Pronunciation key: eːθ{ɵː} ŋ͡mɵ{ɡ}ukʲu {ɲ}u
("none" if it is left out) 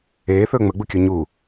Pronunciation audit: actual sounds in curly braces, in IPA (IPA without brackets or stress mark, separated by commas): ɵː, ɡ͡b, ɲ